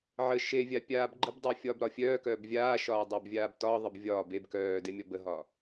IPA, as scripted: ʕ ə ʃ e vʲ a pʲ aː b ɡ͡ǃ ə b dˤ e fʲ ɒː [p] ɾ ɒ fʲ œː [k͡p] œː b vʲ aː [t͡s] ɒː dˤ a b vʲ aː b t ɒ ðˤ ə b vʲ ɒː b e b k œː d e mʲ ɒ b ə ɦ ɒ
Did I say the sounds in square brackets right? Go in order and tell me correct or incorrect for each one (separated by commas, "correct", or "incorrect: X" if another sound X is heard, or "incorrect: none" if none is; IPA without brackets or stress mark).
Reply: incorrect: b, incorrect: k, incorrect: ʃ